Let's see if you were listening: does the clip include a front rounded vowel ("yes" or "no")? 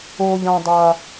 no